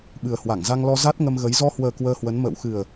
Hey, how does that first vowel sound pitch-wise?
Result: low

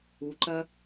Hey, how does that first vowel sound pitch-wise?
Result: low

